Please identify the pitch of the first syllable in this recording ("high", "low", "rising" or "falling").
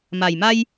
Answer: low